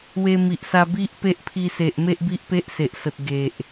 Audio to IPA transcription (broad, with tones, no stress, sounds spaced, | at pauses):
w e˧ m i˨ ʔ s a˧ b i˦ ʔ p e˦ ʔ pʰ i˧ s e˨ ʔ m e˦ ʔ b i˦ ʔ p e˦ ʔ s e˨ ʔ s ə˨ t̚ ɡ e˨ ʔ